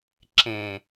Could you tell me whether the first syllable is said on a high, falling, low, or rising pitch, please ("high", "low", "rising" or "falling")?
low